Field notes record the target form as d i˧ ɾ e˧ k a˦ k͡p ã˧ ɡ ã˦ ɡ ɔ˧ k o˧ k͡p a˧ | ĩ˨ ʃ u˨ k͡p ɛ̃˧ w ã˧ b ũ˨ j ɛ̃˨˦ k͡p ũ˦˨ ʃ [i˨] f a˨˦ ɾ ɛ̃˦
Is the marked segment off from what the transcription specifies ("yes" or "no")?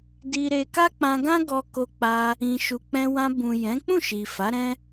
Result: no